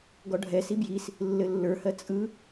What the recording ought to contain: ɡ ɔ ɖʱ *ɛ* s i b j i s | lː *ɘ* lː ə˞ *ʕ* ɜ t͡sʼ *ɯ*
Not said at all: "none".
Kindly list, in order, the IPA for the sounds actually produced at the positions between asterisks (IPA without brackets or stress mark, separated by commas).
ɛ, ɘ, h, ɯ